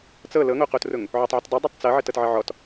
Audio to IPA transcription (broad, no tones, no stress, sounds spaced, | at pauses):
t͡s ɤ l ɤ ŋ o q o t r ʊ ŋ | ʕ o tˤ ʕ ə t dˤ ʊ dˤ ɤ tˤ t͡s ɤ ʕ ə t ɤ t ʕ ə ʕ ɔ t